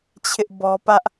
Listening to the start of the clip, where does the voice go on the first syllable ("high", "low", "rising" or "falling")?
high